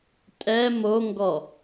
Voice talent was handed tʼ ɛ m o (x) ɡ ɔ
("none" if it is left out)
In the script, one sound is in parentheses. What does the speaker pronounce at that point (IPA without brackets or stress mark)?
ŋ